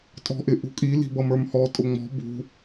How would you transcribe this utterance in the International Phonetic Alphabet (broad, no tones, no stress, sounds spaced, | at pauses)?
tʼ ɔ̤ ʔ ɪ ʔ ṳ kʼ i l i̤ b ʌ m ə˞ m h ɔ tʼ ʊ ŋ͡m ɔ̤ b ṳ